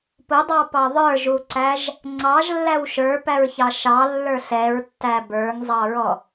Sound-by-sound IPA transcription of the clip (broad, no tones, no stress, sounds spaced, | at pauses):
p ʊ dˤ ɑ p ɑ ðˤ ə˞ ʒ u ǀ æ ʒ | ŋ͡ǀ ɑ ʒ lː æ w ʃ ə˞ p æ ɹ ç ɑ ʃ ɑ lː ə˞ ɬ ɛ ɹ tː æ b ə˞ ŋ zˤ ɑ ɹ ɔ